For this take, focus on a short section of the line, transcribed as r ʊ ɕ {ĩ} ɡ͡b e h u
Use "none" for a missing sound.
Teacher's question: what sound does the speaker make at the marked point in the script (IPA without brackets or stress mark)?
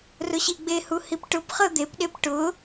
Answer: i